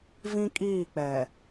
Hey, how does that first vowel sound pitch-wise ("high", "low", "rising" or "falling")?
high